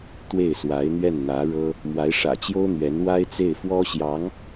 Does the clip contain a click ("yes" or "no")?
no